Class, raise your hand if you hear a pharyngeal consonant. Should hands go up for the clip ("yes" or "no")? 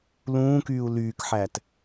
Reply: yes